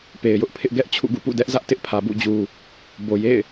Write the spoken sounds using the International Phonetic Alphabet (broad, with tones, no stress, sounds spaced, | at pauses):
p e˨ ɪ̯ j ʊ˦ ʔ pʰ ɪ˦ ʔ ɡ ɛ˦ ʔ t͡ɕʰ ṵ˦˨ ɡ ṵ˦˨ p ṵ˦˨ d ɛ˦ ʔ z ä˦ ʔ t ɪ˦ ʔ pʰ ä˨ b ṵ˦˨ d͡ʑ u˨ | b o˨ j ḛ˦˨ ɪ̯